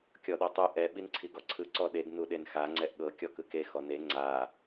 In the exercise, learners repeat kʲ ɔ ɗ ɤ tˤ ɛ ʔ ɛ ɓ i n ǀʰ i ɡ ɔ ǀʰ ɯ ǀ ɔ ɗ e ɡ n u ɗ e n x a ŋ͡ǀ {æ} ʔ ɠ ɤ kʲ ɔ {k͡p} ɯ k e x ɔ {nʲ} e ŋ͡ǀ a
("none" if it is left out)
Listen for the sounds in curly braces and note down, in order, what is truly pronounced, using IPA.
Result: ɛ, k, n

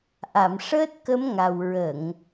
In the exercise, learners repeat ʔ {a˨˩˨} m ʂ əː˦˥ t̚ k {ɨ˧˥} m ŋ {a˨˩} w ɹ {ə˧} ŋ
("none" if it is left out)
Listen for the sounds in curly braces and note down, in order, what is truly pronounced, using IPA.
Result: a˨˩˨, ə˧˥, a˨˩, ə˨˩˨

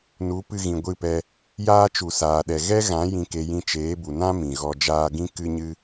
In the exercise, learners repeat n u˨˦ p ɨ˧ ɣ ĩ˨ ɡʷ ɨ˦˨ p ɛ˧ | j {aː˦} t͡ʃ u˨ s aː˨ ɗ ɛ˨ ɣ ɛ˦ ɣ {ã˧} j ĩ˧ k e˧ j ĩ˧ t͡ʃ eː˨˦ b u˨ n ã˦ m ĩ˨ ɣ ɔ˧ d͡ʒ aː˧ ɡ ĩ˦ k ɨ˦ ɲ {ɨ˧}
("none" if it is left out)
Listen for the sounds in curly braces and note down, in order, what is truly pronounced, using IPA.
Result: aː˦, ã˨˦, ɨ˦

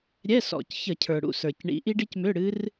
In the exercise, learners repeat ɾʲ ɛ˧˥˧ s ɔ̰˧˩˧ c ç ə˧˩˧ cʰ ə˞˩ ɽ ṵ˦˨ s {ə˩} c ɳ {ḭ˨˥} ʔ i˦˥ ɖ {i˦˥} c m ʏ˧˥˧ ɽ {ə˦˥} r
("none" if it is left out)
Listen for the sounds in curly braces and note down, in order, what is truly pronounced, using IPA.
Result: ə˞˩, ḭ˨˥, i˦˥, ɨ˦˥

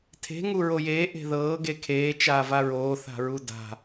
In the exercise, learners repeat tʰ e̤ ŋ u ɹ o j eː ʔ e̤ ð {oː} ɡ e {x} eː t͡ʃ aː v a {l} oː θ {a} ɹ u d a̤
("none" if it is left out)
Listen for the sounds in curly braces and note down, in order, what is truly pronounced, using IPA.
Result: ɤː, kʰ, ɹ, a̤

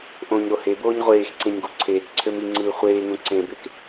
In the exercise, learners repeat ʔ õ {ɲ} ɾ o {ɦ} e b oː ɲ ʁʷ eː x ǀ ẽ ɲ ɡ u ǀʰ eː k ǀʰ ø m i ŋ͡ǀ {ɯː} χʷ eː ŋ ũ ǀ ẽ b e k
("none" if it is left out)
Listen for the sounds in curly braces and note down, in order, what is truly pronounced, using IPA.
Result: ɲ, h, ɯː

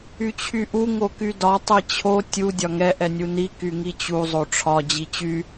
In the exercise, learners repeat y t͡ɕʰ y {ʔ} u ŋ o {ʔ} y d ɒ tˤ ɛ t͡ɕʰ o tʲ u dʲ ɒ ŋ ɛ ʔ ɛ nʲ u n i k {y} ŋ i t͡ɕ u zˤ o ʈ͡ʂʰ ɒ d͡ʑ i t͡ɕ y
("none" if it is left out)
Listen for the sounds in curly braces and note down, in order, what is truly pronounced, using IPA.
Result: ʔ, k, y

